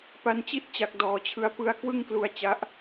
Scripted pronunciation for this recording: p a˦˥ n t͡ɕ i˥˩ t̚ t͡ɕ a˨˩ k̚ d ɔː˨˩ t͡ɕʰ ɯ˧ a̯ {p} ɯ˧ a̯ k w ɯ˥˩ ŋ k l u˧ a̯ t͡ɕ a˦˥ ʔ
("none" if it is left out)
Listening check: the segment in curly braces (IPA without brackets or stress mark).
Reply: p